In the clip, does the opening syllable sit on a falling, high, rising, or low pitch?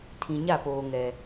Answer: low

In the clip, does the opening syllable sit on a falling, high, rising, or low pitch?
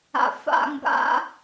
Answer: low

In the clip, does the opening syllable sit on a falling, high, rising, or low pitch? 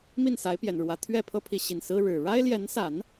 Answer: falling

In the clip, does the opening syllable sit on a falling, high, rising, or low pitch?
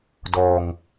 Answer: low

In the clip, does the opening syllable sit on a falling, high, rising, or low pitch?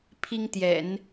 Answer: high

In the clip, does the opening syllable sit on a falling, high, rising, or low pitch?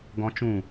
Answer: high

